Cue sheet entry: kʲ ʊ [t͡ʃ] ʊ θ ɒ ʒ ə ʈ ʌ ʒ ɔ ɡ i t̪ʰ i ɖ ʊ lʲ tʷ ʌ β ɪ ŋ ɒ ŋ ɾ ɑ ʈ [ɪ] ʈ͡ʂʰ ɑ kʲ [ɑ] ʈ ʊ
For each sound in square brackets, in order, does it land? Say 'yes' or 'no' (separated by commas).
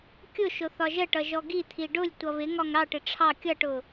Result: no, yes, no